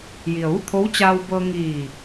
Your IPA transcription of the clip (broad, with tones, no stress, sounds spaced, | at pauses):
j i˩ ə̯ ʋ u˥˨ t̪ʰ o˧˥ w t͡ɕ aː˧ w b ɤː˧ ŋ iː˧˩